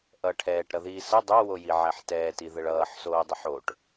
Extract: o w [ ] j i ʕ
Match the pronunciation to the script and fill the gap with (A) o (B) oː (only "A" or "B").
A